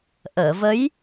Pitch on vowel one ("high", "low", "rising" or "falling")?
low